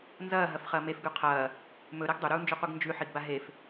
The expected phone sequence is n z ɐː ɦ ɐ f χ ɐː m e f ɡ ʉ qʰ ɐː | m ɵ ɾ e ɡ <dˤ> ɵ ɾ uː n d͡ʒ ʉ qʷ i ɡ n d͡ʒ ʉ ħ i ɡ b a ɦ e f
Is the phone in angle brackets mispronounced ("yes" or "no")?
no